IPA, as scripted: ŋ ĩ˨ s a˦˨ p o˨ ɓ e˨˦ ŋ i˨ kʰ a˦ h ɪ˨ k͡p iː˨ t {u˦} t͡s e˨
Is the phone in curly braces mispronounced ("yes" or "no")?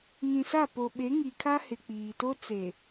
yes